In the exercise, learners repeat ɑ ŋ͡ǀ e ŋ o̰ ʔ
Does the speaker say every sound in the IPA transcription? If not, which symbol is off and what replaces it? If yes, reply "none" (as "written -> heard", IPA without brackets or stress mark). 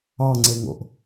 none